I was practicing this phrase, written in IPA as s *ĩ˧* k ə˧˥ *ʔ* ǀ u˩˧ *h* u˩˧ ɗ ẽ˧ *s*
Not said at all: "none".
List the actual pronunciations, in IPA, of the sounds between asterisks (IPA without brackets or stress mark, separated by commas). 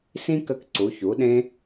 ĩ˥, k, ç, none